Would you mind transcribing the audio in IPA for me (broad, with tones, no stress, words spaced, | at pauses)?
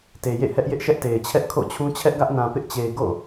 te˨jḛ˦˨hɛ˦ʔjɪ˦ʔ ʃɛ˦ʔte˨ɪ̯t͡ɕʰɛ˦ʔ kʰo̰˦˨t͡ɕʰũ˦ t͡ɕʰɛ˦ʔɡä˦ʔnã˨ pɪ˦ʔt͡ɕe˨ɪ̯ ɡo̰˦˨